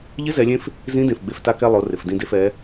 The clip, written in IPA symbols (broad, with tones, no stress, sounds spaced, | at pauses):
ʎ ɪ˧˥ z ɛ˩˧ lʲ ẽ˧ f | z ĩ˧˥ d ẽ˩ f ɡ͡b e˧ f t a˧ k ɛ˧ lˠ o˩˧ r ɪ˩ f d ĩ˧ d e˧ f ɛ˩˧